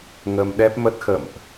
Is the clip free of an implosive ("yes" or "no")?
no